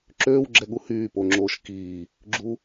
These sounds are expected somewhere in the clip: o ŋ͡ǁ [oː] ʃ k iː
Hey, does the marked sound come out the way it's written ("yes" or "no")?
yes